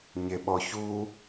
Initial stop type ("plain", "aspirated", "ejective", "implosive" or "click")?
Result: implosive